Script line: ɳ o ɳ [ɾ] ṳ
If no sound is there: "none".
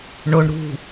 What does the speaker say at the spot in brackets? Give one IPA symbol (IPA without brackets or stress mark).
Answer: ɾ